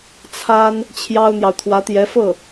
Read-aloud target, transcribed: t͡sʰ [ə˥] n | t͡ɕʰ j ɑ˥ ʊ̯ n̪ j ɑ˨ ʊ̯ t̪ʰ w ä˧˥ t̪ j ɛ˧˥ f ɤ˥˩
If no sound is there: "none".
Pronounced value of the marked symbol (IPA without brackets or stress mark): a˥